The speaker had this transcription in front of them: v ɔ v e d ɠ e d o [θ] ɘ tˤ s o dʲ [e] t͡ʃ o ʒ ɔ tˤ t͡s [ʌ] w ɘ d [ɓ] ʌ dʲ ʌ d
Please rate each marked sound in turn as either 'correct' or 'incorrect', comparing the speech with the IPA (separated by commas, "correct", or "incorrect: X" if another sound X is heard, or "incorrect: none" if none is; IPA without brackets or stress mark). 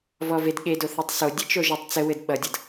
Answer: correct, incorrect: ɘ, incorrect: ə, correct